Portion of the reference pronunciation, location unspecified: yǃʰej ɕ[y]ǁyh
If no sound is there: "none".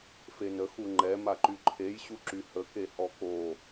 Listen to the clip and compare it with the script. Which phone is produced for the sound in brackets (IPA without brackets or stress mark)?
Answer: u